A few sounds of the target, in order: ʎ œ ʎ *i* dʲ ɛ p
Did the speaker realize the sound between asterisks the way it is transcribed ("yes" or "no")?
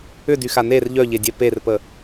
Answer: no